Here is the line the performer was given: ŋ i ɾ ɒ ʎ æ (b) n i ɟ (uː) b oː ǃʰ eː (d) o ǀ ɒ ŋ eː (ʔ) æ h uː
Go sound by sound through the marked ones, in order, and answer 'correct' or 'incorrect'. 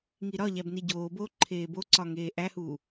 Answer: correct, incorrect: oː, incorrect: b, correct

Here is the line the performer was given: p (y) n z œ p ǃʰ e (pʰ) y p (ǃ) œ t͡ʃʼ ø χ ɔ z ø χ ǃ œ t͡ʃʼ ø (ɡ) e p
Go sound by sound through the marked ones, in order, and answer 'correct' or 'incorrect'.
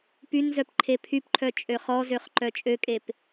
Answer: correct, correct, incorrect: ǃʰ, incorrect: kʼ

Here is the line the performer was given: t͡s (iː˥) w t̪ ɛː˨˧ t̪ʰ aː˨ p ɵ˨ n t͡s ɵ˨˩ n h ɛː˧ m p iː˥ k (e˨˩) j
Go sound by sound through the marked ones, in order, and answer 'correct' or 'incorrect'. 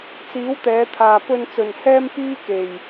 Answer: incorrect: iː˨˥, incorrect: e˨

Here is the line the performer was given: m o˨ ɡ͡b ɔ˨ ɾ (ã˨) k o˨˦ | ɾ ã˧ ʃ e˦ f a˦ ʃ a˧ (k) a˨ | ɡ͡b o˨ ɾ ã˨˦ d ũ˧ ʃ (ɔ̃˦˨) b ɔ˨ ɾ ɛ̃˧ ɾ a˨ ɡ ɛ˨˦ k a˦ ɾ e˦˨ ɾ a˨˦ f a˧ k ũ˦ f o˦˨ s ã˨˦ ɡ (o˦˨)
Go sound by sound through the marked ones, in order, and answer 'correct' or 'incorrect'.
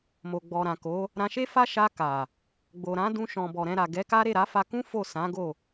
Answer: correct, correct, incorrect: ɔ̃˨, correct

